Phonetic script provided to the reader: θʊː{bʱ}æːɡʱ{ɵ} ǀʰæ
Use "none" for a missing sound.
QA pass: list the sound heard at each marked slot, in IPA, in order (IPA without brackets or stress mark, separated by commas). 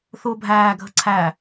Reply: bʱ, ə